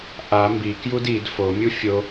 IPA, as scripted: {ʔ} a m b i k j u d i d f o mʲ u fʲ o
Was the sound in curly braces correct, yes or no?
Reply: yes